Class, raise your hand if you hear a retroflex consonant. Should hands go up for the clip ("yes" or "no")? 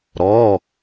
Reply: no